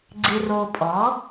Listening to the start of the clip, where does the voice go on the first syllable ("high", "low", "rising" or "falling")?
low